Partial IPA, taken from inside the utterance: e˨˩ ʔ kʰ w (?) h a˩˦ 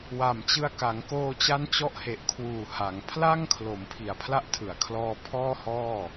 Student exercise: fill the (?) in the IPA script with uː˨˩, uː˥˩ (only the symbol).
uː˨˩